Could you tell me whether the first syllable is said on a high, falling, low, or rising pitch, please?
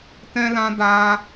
high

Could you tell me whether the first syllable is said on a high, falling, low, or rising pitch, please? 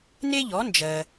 high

